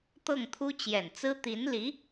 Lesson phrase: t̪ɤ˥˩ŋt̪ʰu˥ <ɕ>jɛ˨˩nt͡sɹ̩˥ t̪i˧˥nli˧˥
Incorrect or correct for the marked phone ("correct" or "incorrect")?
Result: incorrect